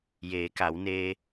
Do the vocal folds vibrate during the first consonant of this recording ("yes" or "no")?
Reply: yes